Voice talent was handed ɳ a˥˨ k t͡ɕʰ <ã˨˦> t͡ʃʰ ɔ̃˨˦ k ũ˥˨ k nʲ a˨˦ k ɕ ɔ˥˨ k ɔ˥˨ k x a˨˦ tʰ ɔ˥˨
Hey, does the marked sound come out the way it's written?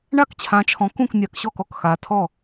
yes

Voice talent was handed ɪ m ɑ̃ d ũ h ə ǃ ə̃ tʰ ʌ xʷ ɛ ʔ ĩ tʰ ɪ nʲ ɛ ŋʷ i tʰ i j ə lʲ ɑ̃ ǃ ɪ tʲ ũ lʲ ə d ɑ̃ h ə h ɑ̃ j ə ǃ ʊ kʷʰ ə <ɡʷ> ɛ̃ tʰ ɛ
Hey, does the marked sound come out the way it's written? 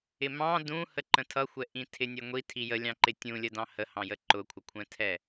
no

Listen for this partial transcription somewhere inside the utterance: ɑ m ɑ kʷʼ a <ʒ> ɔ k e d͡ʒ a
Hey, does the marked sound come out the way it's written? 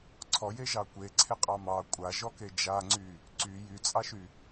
yes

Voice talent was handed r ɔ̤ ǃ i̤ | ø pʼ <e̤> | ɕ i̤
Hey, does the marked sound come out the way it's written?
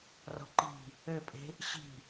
yes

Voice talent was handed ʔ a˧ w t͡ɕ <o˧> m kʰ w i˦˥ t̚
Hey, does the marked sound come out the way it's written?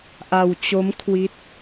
no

